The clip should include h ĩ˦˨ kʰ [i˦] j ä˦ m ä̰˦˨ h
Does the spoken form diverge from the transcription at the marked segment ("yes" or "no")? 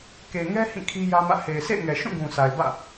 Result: no